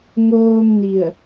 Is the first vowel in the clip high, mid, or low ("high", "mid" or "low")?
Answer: mid